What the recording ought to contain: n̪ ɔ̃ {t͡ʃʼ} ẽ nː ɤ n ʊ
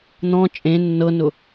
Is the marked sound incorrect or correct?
correct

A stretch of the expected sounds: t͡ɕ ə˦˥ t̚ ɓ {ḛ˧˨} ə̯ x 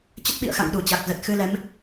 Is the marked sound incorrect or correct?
incorrect: ḭ˧˨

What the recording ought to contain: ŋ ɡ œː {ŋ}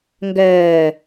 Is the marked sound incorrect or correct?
incorrect: none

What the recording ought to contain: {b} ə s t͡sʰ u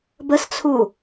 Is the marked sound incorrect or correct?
correct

